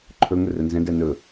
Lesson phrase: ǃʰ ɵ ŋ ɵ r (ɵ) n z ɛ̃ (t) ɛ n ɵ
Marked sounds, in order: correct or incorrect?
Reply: correct, incorrect: d

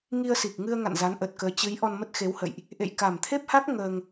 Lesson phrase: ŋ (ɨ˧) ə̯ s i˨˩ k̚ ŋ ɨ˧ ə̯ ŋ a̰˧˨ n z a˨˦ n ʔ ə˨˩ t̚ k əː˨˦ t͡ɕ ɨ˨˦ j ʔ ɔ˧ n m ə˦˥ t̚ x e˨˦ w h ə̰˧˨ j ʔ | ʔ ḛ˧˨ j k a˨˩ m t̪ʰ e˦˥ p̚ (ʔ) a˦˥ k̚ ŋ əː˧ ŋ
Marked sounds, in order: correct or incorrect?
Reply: incorrect: i˧, incorrect: h

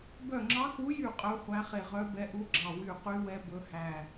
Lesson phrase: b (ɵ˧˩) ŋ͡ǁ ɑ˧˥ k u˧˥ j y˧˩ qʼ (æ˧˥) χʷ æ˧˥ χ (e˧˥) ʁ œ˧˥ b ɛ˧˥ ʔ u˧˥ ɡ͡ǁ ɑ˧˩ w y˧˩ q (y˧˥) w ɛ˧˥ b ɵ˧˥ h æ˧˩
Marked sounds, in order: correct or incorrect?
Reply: incorrect: œ˧˩, incorrect: œ˧˥, incorrect: e˧˩, correct

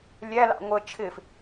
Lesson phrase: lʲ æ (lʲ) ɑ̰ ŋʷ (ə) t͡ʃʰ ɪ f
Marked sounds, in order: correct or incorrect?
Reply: incorrect: l, correct

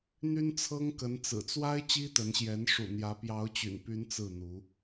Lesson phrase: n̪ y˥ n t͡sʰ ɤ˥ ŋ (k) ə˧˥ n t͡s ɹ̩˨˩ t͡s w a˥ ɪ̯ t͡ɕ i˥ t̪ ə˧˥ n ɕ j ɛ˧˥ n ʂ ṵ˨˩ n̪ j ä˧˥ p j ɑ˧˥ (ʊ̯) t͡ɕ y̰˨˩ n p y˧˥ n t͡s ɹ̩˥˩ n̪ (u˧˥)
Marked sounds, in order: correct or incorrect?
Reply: correct, correct, correct

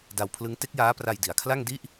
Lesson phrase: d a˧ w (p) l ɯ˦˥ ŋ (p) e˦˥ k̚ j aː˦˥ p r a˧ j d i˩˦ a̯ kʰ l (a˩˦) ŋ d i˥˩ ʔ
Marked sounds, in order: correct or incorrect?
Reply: incorrect: pʰ, incorrect: t, incorrect: a˥˩

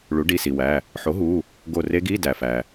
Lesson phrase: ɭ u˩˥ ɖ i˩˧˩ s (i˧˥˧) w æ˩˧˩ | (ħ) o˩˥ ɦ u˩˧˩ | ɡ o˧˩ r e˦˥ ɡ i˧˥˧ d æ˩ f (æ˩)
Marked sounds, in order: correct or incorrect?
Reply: incorrect: i˩, correct, correct

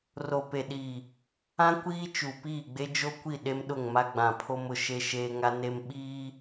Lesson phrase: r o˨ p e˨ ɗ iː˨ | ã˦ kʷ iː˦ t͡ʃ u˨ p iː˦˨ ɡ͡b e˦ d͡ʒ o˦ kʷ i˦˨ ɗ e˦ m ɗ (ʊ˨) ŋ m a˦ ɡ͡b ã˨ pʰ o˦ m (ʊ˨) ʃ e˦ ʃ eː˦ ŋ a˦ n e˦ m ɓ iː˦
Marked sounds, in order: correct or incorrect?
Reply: incorrect: ʊ˦˨, correct

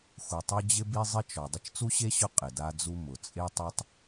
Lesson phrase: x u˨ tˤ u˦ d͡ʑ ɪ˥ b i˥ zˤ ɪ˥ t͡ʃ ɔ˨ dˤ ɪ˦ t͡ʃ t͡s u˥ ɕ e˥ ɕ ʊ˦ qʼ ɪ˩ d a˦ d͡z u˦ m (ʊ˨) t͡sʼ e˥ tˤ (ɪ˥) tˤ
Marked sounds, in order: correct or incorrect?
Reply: incorrect: ʊ˩, incorrect: ɛ˥

